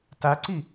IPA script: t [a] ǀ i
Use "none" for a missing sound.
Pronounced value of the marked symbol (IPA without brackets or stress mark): a